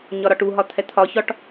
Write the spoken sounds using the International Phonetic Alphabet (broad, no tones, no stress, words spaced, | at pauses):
ɲɒɾɒʈuɦɒ t̪ʰɛt̪ʰɒçɒʈ